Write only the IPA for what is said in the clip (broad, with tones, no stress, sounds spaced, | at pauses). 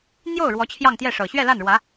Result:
n̪ j o˥˩ ʊ̯ ɻ w ɔ˧˥ t͡ɕʰ j ɑ˥˧ ŋ t̪ j ɛ˥˩ ʂ ɤ˨˩ ɕ ɥ ɛ˥˧ l a˥˩ n ɻ w ä˧˥